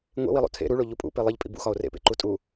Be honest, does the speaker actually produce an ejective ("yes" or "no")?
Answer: yes